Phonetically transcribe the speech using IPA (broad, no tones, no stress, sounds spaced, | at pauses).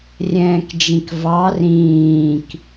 rʲ ɛ̃ː k d͡ʒ ĩ k v ɑ r ĩː k